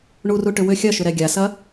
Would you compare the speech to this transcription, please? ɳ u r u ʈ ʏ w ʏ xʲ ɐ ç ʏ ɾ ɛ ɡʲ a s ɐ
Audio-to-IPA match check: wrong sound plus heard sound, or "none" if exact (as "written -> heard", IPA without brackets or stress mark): ç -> ʃ